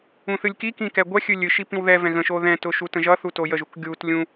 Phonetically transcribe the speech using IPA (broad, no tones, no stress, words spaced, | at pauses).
ũθɨlʲkikĩ kɛɡʷɛxʲɨ lʲɨʃi pĩwðɛvɛ̃ ɣə̃ʃo ðɛ̃tʊ ʃutə̃ʒʌθu tojəʒuk ɡʲut lʲũ